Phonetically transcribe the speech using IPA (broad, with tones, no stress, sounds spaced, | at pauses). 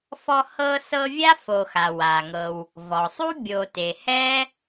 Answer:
f ɔ˦ h ɤ˦ s ɤ˦ vʲ a˥ f o˨ x a˩ w a˩ ŋ ɤ˨ w | v ɔ˩ sˤ u˥ bʲ o˨ t e˩ h ɛ˥